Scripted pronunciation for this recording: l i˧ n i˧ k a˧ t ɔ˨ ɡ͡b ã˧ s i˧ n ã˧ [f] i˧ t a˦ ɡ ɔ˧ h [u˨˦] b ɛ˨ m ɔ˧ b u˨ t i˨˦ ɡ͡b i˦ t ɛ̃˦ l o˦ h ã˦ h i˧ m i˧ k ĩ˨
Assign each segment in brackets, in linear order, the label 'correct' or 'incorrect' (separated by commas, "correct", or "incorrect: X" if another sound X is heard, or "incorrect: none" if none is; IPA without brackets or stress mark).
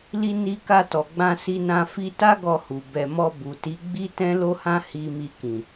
correct, incorrect: u˨